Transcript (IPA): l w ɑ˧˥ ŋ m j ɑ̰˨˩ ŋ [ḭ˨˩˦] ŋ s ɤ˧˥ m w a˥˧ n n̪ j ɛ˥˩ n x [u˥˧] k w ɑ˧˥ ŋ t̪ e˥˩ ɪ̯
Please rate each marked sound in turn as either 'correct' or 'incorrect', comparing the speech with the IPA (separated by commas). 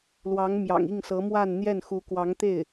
incorrect, incorrect